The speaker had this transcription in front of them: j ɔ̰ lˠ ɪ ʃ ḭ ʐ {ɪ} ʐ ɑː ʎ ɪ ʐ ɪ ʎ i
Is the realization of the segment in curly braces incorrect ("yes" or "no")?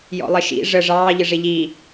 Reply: yes